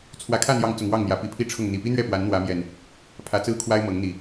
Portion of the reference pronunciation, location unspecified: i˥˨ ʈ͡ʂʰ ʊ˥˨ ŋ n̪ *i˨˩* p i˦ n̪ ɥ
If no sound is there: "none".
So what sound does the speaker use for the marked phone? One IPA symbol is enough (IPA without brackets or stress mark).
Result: i˨˩